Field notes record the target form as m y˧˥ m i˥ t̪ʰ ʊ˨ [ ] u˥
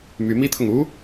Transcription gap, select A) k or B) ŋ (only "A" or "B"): B